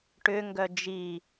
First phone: ʈ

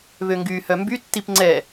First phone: β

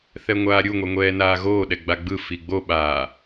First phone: θ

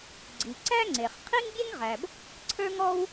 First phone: ɡ͡ǀ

